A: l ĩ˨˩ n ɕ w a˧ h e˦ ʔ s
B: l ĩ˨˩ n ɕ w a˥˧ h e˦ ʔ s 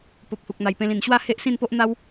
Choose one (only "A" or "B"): B